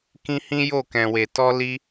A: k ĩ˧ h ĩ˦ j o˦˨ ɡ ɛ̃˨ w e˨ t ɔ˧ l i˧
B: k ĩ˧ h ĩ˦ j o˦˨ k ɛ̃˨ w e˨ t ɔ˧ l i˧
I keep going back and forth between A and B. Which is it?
B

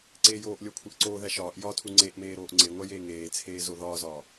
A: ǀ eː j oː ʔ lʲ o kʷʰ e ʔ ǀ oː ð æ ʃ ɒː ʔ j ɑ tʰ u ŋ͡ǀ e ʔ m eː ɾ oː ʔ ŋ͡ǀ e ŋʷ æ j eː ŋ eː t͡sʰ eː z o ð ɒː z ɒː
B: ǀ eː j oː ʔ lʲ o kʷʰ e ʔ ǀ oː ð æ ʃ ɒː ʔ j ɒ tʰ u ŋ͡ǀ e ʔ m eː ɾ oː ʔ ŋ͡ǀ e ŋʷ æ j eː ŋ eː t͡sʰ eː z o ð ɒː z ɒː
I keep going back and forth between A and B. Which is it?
B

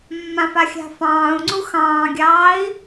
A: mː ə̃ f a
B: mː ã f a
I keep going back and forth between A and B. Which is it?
B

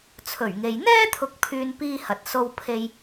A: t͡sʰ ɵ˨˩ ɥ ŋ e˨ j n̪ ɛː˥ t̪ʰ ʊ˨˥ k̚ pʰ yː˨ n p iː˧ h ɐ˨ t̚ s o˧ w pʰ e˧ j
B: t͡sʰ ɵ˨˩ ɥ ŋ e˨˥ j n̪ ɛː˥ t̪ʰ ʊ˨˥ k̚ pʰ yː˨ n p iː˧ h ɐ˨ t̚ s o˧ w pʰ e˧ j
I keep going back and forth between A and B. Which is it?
A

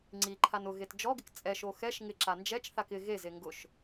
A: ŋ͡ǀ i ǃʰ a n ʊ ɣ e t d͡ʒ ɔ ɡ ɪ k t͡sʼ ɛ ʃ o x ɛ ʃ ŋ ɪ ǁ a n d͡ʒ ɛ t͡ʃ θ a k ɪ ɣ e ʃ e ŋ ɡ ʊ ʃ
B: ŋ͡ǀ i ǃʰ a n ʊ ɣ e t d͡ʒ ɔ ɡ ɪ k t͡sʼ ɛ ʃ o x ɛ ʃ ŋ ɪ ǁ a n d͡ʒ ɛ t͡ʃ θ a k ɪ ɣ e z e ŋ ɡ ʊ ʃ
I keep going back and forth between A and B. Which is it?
B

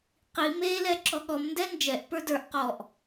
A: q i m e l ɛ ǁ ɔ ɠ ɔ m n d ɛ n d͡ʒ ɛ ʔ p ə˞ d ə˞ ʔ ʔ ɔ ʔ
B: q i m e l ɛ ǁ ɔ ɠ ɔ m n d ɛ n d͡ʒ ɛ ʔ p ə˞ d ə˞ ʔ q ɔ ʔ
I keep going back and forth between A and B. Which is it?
B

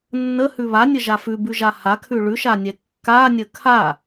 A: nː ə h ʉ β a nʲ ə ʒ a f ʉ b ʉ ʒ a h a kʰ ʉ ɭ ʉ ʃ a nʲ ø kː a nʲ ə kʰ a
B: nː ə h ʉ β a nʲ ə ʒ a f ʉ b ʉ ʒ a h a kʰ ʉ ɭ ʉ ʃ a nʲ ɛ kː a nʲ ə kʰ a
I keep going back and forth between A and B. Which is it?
B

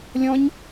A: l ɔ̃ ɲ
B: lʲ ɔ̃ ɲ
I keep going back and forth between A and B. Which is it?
B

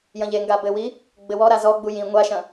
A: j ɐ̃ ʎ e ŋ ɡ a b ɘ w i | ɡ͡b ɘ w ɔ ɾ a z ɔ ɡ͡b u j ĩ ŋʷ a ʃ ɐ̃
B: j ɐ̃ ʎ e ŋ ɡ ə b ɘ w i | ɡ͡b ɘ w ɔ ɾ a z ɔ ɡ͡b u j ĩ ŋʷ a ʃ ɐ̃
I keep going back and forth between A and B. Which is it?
A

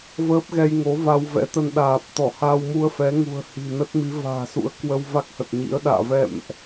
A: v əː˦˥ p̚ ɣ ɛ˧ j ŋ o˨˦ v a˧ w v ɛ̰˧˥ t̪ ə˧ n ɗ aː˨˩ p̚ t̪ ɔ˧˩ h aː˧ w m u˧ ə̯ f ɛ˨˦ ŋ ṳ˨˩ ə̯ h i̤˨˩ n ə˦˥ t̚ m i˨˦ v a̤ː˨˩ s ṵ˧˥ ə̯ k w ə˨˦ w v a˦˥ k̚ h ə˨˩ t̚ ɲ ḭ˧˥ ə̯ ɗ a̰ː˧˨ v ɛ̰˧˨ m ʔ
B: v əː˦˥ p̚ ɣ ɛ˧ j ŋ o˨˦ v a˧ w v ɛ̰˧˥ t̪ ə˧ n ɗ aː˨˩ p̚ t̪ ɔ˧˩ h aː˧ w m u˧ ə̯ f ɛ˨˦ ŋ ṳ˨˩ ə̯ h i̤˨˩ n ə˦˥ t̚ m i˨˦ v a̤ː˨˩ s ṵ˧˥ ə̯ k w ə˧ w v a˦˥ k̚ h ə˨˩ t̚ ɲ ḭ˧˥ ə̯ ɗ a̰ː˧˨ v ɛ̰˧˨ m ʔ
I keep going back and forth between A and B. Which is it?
B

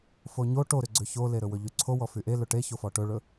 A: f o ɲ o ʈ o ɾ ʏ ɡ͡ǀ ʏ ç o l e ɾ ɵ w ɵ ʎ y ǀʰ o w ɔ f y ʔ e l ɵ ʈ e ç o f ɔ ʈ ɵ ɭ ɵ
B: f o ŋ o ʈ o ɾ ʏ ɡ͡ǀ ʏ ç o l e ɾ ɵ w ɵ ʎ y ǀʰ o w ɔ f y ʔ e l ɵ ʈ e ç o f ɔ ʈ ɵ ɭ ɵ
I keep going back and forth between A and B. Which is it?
A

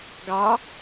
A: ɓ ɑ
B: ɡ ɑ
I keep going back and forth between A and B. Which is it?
B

